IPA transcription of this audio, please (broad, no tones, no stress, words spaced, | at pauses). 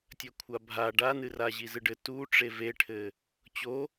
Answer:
tʲɐkʷʰabʱa ɖanɨra ʑizɨɖɘ tuʈ͡ʂe veʈʰɘ | t͡ɕo